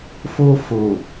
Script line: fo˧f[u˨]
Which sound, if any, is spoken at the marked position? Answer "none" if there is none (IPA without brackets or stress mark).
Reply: o˨